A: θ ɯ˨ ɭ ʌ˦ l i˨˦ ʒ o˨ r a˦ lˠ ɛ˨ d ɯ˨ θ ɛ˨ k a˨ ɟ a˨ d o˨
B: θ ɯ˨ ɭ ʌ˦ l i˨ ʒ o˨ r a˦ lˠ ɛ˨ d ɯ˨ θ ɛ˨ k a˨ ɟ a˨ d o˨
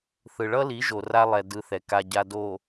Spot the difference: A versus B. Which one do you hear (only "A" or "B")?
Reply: A